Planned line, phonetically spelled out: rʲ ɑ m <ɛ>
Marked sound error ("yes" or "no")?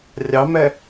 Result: no